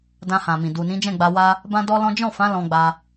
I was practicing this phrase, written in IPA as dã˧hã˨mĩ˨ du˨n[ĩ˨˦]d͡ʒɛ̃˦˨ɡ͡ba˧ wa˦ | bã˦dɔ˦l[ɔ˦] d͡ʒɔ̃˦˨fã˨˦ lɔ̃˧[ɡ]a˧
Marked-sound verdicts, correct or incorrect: correct, incorrect, incorrect

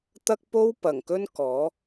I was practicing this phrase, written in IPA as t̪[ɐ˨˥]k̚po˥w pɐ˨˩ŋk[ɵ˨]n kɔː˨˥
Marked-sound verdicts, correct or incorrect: incorrect, incorrect

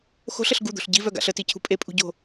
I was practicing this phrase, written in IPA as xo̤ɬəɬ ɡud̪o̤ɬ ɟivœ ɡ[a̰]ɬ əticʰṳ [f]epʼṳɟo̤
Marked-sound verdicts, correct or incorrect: correct, incorrect

